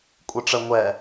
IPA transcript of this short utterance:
kʷʼɯʈ͡ʂə ŋʷɛ

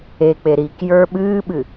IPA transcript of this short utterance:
ek͡pe ɾikjə˞ ɓɨːɓɨ

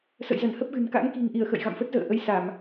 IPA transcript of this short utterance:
sə̰˧˨jzə˧˩n hə˦˥p̚ɣɨ̤˨˩n ka̰˧˥ŋki̤˨˩ŋʔi˧˩ə̯ xə̰˧˨j ɣa̰˧˨mfə˦˥t̚zə̰ː˧˨ ʔə˧j sa˧˩˨m

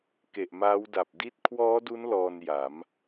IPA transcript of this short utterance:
ke˨˩ʔmaː˦˥wda˨˩p̚ di˦˥t̚kʰwɔː˦˥du˦˥n lɔː˧nja˩˦m

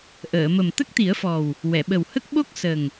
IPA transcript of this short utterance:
ʔəː˨˩˨mə˨˩m t̪ə˦˥k̚t̪i˨˩˦ə̯fɔ˨˩w | wɛ˨˩˨ɓə˨˩whə˦˥k̚ɓo˦˥k̚ sə˨˩ŋ

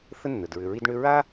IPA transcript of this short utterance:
θə˥nːə˩dɹʏ˨ɹi˦d ɳʏ˦ ɹa˥

